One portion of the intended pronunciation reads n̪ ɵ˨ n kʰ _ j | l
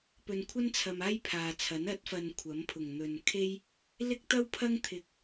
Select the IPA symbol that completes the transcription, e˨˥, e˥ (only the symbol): e˥